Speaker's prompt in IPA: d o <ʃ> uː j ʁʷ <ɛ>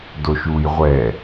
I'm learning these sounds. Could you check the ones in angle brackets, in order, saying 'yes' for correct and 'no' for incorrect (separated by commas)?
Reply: yes, yes